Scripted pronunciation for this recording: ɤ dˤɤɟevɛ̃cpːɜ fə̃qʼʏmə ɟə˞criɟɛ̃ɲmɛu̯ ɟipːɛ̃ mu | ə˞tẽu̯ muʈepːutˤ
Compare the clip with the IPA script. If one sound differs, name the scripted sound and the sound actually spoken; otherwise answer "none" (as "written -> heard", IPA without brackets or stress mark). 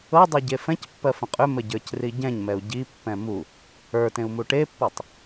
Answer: v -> f